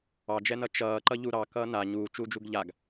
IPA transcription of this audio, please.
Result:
ɑd͡ʒɛnʌ t͡ʃʌː ǃʌʎuɾɑ kʌːna ɲuːt͡ʃuːd͡ʒuɡ ʎaɡ

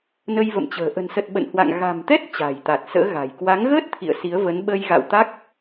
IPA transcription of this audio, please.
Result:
nə˧jvə̰˧˨mt͡ɕə̤ː˨˩ ʔə̤˨˩nsə˨˩t̚ ɓə̰˧˨nhwa̰˧˨ŋ ɣa̤˨˩mt̪ɛ˦˥t̚ t͡ɕa̤˨˩jt̪a˨˩t̚sə̰ː˧˥ɣa̤˨˩j kwa˨˦ŋɣəː˦˥t̚ t̪ʰḭ˧˨ə̯si˨˦ə̯və˨˦n ɓə˧j ɣa̰˧˨wt̪a˦˥k̚

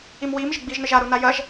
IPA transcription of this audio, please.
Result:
imwiːm ʒɘɡ͡biːʒnɘʒa ɾunajɐʒ

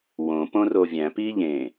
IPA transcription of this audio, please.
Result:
wõ põrovʲæ̃ piʎẽ

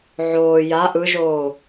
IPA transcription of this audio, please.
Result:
ʕoː ja ʔɯʒoː

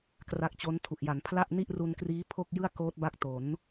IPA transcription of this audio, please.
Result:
kra˦˥k̚t͡ɕo˦˥ntʰu˨˩ʔ ja˩˦npʰla˥˩ʔni˥˩ʔ ru˧nkriː˦˥ pʰo˥˩k̚ jɯ˥˩a̯koː˦˥t̚ba˦˥k̚to˩˦n

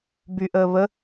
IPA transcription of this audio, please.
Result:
byʔəː βə

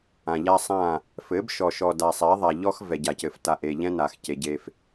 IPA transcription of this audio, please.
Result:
ã˨ʎa˦ sˤã˦˨ | fɘ˨˦bʃɔ˨ ʃɔ˨da˨sˤɛ˨˦ ðˤa˨ʎɔ˦x vɛ˨ɟa˨cɘ˨f ta˨ʔe˨ʎɛ̃˦ na˨xce˨ɟe˦f

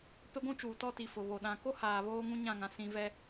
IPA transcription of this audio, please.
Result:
pe˦ɡʷũ˦t͡ʃuː˨ tɔ˦ti˨fʊ˨βo˨ ɗã˨ko˦ haː˨βoː˦ŋũ˦ ɲã˦˨ŋã˨ sĩ˦ vɛ˦

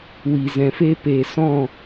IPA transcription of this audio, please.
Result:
wi˨zɛ̃˨fe˦ pe˨sɔ̃˦˨

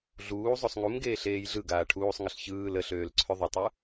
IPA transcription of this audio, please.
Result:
ɮuː zˤosˤŋumɡeː ɬeːjɮɯɡaː ʈʰuːsˤŋəɬ çɯː ləɬøːl ǀʰøðˤətˤu

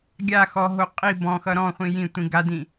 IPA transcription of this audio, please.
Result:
ɡʲa xɔɦo qʼi bɔ̃xʌ ɾɔ̃χʷĩ jĩtʷĩ ɡadĩ

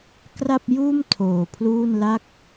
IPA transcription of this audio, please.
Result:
kra˥˩p̚juː˥˩m tʰoː˨˩pʰluː˥˩n la˥˩k̚

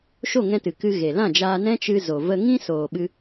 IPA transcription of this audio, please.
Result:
ʃo˦˨ŋɛ̃˧ tɨ˨kɨ˧ ɣe˨lã˦˨d͡ʒaː˧nɛ̃˦ t͡ʃɨ˧ zo˨və˧ŋĩ˦ soː˨ ɓɨ˧

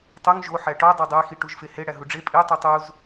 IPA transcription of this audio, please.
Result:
tˤuŋ ʒo ħæʈɒ dˤodˤæxi ʈuʒfehe ɽæɦuɖ͡ʐe pʼi tˤutˤuz

